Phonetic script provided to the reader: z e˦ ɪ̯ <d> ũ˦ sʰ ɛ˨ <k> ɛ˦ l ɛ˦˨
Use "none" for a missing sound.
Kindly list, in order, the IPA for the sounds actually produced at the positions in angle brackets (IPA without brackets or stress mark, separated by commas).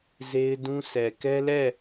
d, k